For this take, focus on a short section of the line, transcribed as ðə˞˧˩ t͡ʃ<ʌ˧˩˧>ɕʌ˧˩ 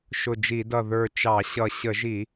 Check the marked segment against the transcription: incorrect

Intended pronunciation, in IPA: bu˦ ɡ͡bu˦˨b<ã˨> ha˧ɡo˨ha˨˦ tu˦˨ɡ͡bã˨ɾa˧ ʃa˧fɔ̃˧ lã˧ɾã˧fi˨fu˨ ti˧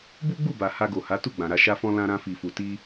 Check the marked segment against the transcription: incorrect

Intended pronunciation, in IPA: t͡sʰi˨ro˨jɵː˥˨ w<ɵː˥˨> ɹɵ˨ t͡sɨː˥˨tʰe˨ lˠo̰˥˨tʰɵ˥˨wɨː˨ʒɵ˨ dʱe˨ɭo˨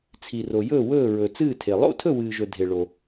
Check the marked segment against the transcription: correct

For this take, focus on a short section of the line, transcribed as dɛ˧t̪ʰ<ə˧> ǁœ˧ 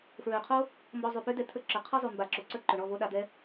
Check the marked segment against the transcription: incorrect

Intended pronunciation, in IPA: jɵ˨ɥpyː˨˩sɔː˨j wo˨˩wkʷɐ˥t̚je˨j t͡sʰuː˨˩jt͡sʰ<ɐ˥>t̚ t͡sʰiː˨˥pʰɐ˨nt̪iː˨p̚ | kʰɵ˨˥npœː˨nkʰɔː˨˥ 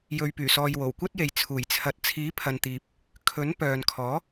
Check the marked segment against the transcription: incorrect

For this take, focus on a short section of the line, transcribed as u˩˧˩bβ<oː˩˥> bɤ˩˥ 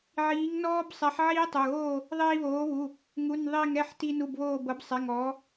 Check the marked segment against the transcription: incorrect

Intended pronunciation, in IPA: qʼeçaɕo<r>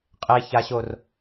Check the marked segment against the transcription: correct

